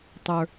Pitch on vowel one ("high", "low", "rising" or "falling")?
low